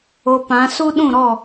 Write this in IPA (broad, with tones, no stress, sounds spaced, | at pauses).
o˧ p ã˨˦ s u˦ ɗ ũ˦˨ ɾ ɔ˦˨